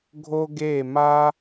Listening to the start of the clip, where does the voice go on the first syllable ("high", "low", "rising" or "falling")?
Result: high